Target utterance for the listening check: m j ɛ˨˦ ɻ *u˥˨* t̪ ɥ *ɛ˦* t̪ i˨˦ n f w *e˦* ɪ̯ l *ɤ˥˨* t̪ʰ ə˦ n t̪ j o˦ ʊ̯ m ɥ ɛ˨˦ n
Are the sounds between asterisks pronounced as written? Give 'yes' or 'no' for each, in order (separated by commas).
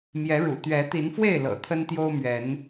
no, no, no, no